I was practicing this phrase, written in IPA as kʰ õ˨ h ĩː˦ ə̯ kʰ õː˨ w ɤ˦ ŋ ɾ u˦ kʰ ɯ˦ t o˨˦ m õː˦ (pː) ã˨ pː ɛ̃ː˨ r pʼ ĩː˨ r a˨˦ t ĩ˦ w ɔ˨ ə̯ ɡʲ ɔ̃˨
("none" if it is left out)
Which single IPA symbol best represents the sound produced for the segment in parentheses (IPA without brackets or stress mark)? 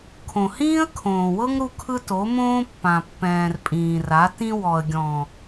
pː